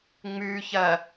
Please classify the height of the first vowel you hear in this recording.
high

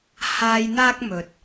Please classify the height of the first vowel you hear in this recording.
low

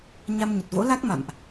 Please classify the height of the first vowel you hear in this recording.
low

